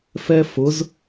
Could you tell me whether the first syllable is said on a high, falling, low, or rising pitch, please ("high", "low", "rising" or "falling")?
high